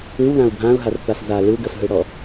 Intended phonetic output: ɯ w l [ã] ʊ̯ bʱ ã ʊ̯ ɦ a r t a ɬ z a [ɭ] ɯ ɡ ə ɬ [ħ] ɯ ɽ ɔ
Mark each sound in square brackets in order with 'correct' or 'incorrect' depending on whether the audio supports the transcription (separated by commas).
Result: correct, incorrect, incorrect